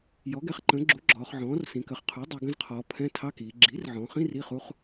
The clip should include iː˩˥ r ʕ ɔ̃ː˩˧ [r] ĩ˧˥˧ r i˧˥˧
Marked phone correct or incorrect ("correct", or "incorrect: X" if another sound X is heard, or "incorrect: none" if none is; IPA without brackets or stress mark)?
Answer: incorrect: χ